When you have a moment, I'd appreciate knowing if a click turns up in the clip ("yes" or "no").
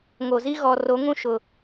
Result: no